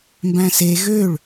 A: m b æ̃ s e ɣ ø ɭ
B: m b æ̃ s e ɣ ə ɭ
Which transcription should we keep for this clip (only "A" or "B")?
A